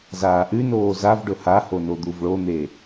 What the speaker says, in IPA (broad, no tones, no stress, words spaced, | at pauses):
zaːʔʉnoː zavɖɵ haho nod̪uvɭon̪e